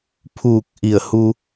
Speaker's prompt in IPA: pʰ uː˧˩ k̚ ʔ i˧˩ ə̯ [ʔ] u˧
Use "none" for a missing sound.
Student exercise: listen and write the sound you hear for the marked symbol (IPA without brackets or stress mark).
h